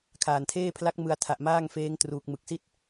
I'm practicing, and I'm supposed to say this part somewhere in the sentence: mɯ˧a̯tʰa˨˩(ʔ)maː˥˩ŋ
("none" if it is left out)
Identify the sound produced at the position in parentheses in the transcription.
ʔ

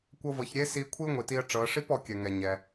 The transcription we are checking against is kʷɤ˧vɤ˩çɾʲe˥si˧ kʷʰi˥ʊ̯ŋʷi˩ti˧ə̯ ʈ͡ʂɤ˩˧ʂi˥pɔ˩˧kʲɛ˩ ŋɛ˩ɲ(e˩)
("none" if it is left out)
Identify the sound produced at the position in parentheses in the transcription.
ɛ˩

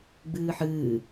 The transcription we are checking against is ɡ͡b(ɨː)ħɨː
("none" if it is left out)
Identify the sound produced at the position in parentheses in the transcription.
ɨː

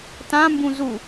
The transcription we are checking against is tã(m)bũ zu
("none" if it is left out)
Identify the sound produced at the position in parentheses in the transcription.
m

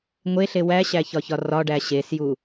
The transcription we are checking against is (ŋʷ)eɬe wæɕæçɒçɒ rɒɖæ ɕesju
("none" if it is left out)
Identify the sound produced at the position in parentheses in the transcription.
ŋʷ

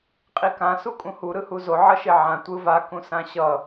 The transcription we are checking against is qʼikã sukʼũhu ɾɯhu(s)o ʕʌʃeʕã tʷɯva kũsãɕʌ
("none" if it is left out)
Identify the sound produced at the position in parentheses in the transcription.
z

